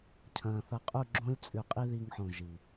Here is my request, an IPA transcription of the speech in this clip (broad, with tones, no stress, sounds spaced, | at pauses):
cʰ ɐ̃˨ θ ɐ˧ qʼ u˦˨ ɡ͡ǁ õ˦ lʲ t͡sʼ ʉ˨ qʼ i˦ ð i˧ ŋ ħ õ˨ ʒ i˨